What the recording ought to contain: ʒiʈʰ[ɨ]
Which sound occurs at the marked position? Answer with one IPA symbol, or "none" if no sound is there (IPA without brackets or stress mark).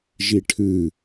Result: ɨ